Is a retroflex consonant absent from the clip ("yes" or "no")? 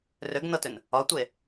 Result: yes